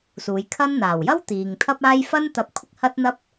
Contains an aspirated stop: yes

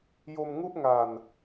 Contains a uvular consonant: no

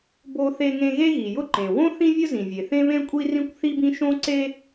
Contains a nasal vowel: yes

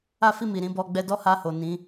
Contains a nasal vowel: yes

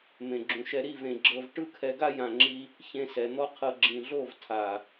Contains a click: yes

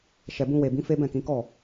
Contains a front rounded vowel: no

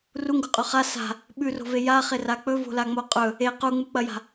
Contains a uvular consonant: yes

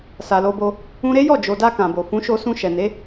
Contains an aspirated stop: no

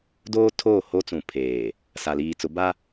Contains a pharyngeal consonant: no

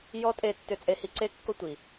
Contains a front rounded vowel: yes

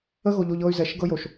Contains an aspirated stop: no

